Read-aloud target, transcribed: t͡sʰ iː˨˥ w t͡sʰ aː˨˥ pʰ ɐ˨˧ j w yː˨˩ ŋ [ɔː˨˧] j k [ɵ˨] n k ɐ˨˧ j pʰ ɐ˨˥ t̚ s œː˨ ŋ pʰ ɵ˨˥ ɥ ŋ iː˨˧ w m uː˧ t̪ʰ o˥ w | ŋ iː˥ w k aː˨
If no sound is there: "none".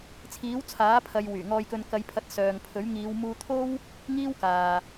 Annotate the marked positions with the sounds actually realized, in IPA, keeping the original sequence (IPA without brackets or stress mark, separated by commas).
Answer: ɔː˨, ɵ˨